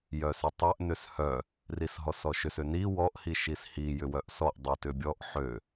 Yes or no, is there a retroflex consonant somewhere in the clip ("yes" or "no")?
no